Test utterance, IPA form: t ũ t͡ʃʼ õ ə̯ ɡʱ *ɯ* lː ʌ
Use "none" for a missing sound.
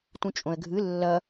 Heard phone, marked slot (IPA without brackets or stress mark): ɯ